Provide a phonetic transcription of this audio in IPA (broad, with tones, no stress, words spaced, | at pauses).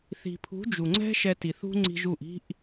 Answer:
θi̤˨pʰṳ˨˦ d͡ʒu˨ŋ͡ǀɛ̤˦ ʃɛ˧ti˨θṳ˦ ŋ͡ǀi̤˧ʒu˦˨ʔ i̤˧ʔ